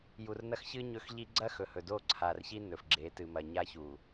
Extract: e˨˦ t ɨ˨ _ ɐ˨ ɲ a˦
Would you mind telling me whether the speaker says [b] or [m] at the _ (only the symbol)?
m